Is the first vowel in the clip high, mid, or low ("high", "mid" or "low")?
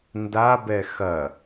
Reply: low